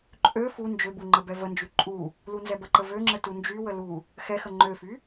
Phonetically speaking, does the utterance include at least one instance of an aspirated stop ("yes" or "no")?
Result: no